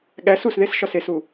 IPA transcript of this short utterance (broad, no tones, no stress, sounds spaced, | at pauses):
ɠ æ s u s ð e s ʃ ɒ s e s u